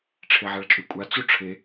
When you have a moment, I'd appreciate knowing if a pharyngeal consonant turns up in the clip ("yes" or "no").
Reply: yes